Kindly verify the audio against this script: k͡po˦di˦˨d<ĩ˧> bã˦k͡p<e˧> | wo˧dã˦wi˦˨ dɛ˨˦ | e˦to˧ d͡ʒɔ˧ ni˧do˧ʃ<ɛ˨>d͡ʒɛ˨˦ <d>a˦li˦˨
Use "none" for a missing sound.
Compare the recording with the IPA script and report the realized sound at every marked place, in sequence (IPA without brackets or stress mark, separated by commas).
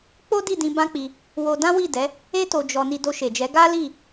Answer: ĩ˧, i˧, e˨, ɡ